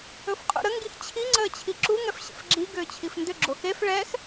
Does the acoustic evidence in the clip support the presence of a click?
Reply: yes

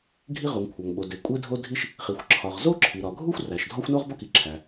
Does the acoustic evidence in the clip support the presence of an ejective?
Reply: yes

